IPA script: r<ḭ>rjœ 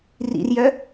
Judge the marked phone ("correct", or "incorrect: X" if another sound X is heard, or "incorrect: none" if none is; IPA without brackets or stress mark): correct